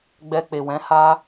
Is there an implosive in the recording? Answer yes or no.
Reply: no